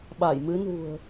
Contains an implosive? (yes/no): yes